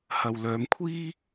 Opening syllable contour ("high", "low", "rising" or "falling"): low